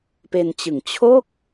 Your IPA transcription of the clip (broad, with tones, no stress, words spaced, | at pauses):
pe˧nt͡ɕɯ˨˩ŋ t͡ɕʰo˥˩k̚